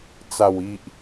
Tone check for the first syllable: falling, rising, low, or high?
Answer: low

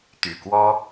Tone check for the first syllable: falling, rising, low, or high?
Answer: low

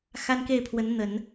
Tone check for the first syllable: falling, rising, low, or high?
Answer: high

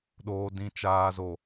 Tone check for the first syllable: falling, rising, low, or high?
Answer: low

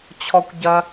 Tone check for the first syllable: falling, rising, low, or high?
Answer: high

